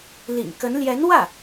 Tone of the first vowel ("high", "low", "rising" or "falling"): low